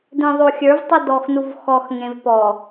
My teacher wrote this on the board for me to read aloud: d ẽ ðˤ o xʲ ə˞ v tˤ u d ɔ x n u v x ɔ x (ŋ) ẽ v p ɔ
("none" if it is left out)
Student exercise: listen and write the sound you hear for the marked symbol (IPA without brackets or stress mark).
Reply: ŋ